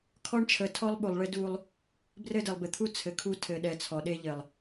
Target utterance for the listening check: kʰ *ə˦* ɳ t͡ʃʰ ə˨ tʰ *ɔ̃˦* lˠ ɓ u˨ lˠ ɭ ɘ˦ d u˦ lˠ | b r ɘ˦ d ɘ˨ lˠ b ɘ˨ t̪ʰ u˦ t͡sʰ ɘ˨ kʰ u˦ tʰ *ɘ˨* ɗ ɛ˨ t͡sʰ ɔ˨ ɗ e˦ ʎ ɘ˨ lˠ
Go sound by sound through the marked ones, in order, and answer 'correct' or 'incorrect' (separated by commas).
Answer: incorrect, incorrect, correct